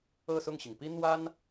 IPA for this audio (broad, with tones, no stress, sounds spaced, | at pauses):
ɤ˥˧ s ʊ˥˩ ŋ ɕ i˩ ŋ p i˥ n̪ w a˥ n